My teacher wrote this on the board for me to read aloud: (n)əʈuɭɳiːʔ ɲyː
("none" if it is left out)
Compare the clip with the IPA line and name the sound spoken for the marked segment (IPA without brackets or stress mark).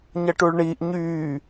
ɲ